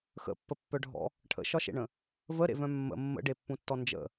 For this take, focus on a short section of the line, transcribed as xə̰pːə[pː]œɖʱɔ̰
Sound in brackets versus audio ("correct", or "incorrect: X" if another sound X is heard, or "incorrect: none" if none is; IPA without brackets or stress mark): correct